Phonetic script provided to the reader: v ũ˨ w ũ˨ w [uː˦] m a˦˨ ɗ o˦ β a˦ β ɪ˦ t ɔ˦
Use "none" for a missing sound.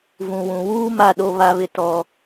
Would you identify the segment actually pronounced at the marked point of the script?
uː˦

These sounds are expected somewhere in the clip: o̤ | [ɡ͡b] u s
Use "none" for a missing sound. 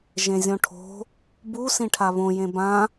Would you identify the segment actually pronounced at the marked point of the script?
b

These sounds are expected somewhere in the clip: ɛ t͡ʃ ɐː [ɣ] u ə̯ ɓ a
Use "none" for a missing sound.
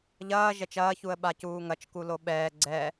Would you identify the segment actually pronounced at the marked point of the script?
ç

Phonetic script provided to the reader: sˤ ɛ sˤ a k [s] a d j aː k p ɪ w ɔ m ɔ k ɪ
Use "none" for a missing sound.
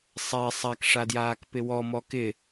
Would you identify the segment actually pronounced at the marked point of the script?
ʂ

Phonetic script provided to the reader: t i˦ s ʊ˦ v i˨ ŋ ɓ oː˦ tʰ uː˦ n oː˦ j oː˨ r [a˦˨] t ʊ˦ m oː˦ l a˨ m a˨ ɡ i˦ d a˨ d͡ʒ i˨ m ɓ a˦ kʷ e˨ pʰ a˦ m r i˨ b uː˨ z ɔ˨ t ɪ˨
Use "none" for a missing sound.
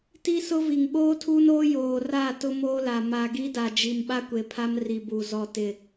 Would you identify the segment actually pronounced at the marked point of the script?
a˦˨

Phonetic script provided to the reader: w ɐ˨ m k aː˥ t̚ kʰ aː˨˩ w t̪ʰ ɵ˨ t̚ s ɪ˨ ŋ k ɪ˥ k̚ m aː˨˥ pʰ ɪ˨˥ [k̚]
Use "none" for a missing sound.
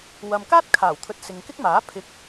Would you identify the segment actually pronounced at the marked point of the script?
k̚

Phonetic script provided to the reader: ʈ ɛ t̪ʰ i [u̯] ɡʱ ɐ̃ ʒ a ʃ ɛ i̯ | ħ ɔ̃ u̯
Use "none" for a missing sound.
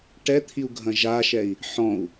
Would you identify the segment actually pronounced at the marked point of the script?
u̯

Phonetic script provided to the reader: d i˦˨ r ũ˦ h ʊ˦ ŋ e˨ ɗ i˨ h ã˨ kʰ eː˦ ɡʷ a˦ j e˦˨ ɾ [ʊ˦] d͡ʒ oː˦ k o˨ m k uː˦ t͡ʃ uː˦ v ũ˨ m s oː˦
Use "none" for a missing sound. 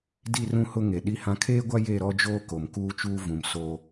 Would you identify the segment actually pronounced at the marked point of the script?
ɔ˦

